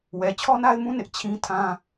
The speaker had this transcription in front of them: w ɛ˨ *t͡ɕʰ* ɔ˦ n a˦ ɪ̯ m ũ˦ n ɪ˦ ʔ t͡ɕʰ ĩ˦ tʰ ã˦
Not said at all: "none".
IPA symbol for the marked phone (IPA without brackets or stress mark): t͡ɕʰ